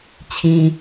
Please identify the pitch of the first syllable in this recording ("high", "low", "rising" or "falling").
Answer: low